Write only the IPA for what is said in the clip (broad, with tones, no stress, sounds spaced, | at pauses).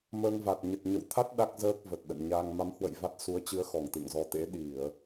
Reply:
m əː˧ ŋ v a˨˩ t̚ ɲ ə˨˩ t̚ ɲ ə̰˧˨ w t̪ʰ a˦˥ t̚ ɗ a˦˥ k̚ z əː˦˥ k̚ v ə˨˩ t̚ ɗ ə̰˧˨ n ɲ a˧ ŋ m a˨˦ m h w ə̰˧˨ j v a˦˥ t̚ s u˨˦ ə̯ t͡ɕ ɨ˧ ə̯ x ɔ˧˩ ŋ t̪ ɨ̰˧˨ ŋ z ɔ˨˦ t̪ ḛ˧˥ ɗ i˧˩˨ ə̯